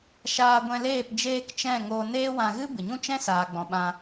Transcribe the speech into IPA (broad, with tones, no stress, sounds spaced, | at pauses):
ʃ aː˧ ɡʷ ɛ̃˧ l eː˦˨ p d͡ʒ eː˦ k t͡ʃ ɛ̃˦˨ ŋ oː˧ n eː˦ w ã˧ ɣ ɨ˦ b ɨ˨ ɲ ũ˦ t͡ʃ ɛ̃˦ s aː˨ ɡ͡b ɔ̃˨ ɓ ã˧